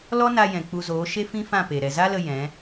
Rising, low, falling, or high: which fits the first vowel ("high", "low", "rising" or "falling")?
high